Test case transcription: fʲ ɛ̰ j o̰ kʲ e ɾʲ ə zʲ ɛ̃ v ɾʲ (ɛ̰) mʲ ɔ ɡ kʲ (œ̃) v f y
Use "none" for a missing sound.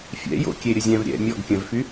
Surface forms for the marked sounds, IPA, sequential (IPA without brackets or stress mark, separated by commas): ɛ̰, œ̃